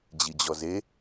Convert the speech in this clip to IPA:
d͡ʑid͡ʑɔze

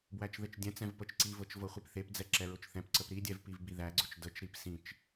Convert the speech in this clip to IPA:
bwæt͡ʃðɘt͡ʃdʲɛ̃t͡sɛ̃v pɤt͡ʃǀivɤt͡ʃ vɤχʷipθepd͡zɛ ǁɛɹʊt͡ʃθɛ̃pǀəp ɾidʲɛv pivbiðæɡ͡ǀʊt͡ʃ dət͡ʃɾip sĩt͡ʃ

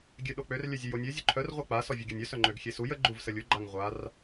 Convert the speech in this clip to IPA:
ɡʲøɗok͡pør lʲœzʲœjonʲø zʲoǃʰœr ʁʷœk͡pa sɔvʲɛɡʲanʲœ sœŋ͡ǃøɡxʲesuj ə ɡ͡ǃuvsəlʲu ɡ͡ǃaŋʁʷar

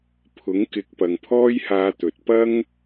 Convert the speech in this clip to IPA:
pʰʊ˨˥ŋkɪ˨˥k̚pɐ˨ŋpʰɔː˥j haː˧t̪ɵ˨t̚ pɐ˥ŋ

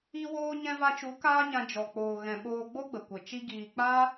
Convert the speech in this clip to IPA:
i˧woː˧ ɲɛ̃˧va˧t͡ʃu˨˦ kaː˦ɲã˧ d͡ʒɔ˨ k͡poː˨ɣɛ̃˨ɓoː˧ ɡ͡bo˦ɡ͡bə˨kʷə˨ t͡ʃi˦ɡiː˧ k͡pa˦

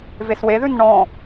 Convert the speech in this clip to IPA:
vesweðʉn ɳɔ̃

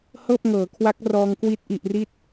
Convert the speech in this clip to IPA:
hɤː˥˩p̚ŋɤː˩˦kʰwa˦˥k̚ rɔː˧ŋkwi˦˥t̚ ʔi˨˩ʔri˥˩t̚

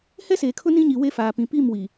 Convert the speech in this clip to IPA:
hɛ˦seː˨kʰʊ˦ nĩ˦ɲi˨ we˦˨faː˨pĩ˨ pi˦˨mwi˨

